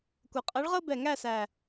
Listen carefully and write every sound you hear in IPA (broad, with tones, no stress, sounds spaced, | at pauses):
kʷ ʌ˨˩ qʼ ʌ˧˥ ɭ ʁ ɤ˥ b ɛ˨˩ ŋ æ˥˧ s æ˨˩